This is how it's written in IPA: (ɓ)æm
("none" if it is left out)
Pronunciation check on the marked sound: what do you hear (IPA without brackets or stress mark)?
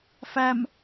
f